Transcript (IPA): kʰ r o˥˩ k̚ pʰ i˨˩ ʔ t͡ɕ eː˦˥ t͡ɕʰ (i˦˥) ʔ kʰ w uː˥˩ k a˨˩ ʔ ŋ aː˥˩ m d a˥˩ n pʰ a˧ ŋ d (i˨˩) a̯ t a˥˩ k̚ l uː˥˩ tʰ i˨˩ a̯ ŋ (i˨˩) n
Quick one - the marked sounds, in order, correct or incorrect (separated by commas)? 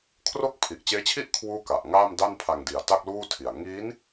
incorrect, correct, incorrect